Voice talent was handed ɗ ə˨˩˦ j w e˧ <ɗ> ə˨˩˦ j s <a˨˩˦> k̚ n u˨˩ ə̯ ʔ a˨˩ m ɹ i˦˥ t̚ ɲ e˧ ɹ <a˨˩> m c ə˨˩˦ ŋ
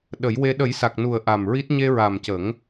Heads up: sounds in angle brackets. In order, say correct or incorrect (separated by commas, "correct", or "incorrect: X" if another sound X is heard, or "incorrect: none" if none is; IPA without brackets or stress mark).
correct, incorrect: a˨˩, correct